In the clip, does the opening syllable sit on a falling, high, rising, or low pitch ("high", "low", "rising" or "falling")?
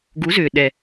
rising